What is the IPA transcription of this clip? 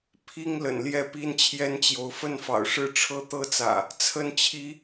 pʰ i˦ ŋ l ə̰˨˩ n l j ɛ˥˨ p i˦ n t͡ɕʰ j ɛ˦ n t͡ɕ j o˨˦ ʊ̯ f ə˥˨ n f ɑ̰˨˩ ʊ̯ ʂ ɻ̩˥˨ ʈ͡ʂʰ ɤ˦ t̪ ɤ˦ t͡s ä̰˨˩ | t͡sʰ ə˥˨ n t͡ɕʰ i˦

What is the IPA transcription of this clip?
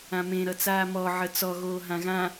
ã m ẽ ɾ ʌ t͡s aː m ɔ ʕ ə t͡s ɔ ɣ oː ɦ ã ɣ ã

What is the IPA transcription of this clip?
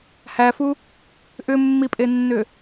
h æ f u | ʔ ʏ mː i pʼ e nː ʏ

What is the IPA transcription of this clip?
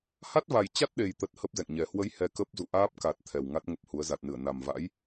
h a˦˥ t̚ v a˨˩ j t͡ɕ a˦˥ t̚ ɗ e˨˩ j t̪ ə˨˩ t̚ h ə˦˥ p̚ z ɛ̰˧˨ ŋ ɲ ɛ˨˩ h w ə˨˦ j h ɛ˧ k ə˦˥ p̚ z ṵ˧˨ ʔ aː˦˥ p̚ k a˨˩ t̚ t̪ʰ ɛ˨˩ w ŋ a˦˥ t̚ ŋ ə˦˥ p̚ h u˨˦ ə̯ z a˨˩ t̚ n ɨ˧˩ ə̯ n a˨˩ m v a̰˧˥ j

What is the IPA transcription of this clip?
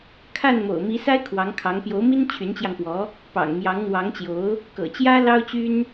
kʰ a˥˩ n m o̰˨˩ ʊ̯ m i˧˥ s a˥ ɪ̯ kʰ w ɑ˧˥ ŋ kʰ ɑ˧˥ ŋ p j o˧˥ ʊ̯ m i˥ n t͡ɕʰ y˧˥ n t͡ɕ j ɑ˧ ŋ p w ɔ˧˥ | p ɑ̰˨˩ ŋ m j ɑ˧˥ ŋ n̪ w ɑ˧˥ ŋ t͡ɕ j o˧˥ ʊ̯ | k ɤ̰˨˩ t͡ɕ j ä˥ l ɑ˥ ʊ̯ t͡ɕ y˥ n

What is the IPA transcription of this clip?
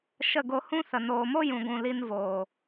ʃ ə˦˨ ɡ o˧ h ũ˦ s ə˨ n oː˨ m o˦ j ũ˨ ɡʷ ũ˨ l i˧ n v oː˨

